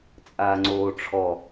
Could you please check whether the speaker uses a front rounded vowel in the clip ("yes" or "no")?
no